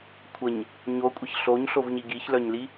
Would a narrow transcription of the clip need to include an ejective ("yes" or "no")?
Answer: yes